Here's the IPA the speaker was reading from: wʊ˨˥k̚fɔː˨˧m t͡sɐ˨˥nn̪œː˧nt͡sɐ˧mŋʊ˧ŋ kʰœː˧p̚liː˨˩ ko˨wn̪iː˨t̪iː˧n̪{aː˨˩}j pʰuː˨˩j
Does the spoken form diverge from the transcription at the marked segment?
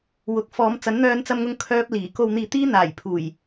no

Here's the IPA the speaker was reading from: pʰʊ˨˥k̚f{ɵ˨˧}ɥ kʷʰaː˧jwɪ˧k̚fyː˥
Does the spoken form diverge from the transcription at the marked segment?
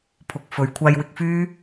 yes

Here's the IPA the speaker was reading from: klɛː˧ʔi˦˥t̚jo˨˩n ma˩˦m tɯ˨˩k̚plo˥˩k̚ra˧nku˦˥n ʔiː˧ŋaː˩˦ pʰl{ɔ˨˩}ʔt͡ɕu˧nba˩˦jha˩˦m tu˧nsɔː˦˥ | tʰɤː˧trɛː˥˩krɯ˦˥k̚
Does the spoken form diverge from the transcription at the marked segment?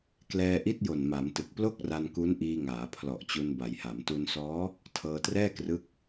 no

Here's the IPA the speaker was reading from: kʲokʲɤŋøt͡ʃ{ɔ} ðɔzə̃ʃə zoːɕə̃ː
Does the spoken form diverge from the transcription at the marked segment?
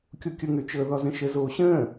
yes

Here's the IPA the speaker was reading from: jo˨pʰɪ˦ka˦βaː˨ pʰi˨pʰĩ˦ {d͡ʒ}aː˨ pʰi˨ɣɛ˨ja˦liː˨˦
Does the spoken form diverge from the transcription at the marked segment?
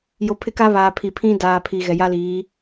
yes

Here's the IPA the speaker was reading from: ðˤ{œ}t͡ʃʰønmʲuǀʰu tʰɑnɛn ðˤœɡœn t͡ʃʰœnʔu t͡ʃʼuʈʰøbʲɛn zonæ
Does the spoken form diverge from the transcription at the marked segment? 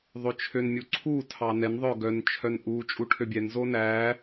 yes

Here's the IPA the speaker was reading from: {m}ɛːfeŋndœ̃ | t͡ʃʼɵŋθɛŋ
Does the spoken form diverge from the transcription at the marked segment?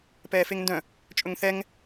yes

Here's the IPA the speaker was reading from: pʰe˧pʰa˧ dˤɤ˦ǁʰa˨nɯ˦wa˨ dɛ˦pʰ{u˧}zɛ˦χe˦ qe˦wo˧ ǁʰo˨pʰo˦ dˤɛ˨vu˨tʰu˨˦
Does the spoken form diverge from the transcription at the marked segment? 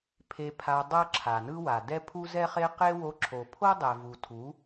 yes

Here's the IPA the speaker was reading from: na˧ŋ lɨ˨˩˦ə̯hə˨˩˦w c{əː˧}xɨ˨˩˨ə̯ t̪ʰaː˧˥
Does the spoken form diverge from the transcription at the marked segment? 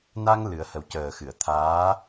yes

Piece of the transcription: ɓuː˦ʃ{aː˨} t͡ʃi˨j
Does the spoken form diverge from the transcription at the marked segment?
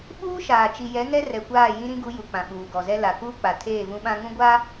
no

